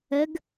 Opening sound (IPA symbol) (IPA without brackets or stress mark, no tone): ə